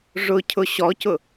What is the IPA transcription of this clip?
ʐ ʊ cʰ ʊ ɕ ɔ c ʊ

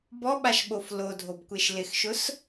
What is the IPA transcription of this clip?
b ɔ ɓ a ʃ ɓ o f l o dʱ o b kʷ e ʃ l ɪ x ʃ ʊ s

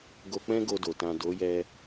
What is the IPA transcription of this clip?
ɡ o˧ k͡p ɛ̃˦ ɡ o˧ d o˨ t ã˨ d o˨˦ j ɛ˧

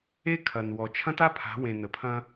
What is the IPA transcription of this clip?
e˦ kʰ ɐ˨ n w ɔ˨ t͡ʃʰ ɐ̃˦ t a˦ pʰ a̤˨˦ w ẽ˨ n ə˨ pʰ ɐ̃˦

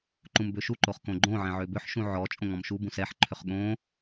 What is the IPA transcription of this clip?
ǃ ũ m b ø ʃ u ǃ o χ k õ ɡ͡ǃ õ ʕ ɛ̃ ʕ ø b ʏ ħ ʃ ũ ʕ ɔ t͡ʃʼ õ ŋ ɔ̃ m ʃ u b ũ s ɛ ħ ǃʰ ʏ χ ɠ õ

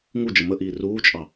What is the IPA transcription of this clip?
ŋ u d͡ʒ ə m ə ʔ iː r uː t͡ʃʼ ɑ

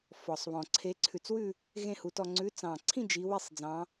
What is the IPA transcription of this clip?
f ɔ˨˩ sˤ β ɔ̃˨˩ ǀʰ e˨˦ ǀʰ ʉ˨˩ t͡s w ʉ˥˨ | ɣ ẽ˥˨ h u˨˦ t ɔ˥˨ ŋ͡ǀ ʉ˨˦ t͡s ɑ̃˨˩ ǀʰ ĩ˥˨ d͡ʒ i˨˦ w i˥˨ sˤ d͡z ɑ̃˨˦

